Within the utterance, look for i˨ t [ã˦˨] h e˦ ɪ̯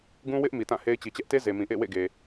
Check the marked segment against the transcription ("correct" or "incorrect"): correct